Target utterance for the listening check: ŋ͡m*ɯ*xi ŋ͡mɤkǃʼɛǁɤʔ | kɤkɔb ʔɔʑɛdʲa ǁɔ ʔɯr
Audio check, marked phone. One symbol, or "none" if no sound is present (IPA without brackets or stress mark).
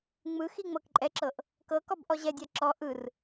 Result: ɯ